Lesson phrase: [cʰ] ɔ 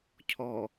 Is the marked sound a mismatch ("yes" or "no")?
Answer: no